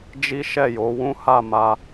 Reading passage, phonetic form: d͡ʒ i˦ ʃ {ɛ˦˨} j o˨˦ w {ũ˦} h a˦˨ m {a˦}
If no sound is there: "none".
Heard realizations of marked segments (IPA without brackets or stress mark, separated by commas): ɛ˦˨, ũ˦, a˧